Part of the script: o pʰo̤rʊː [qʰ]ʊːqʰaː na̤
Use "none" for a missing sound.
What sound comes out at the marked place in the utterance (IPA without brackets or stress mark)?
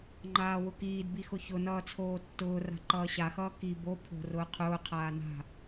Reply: qʰ